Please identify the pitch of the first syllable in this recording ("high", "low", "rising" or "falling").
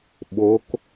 rising